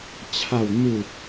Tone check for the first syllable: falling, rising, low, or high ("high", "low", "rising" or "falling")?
falling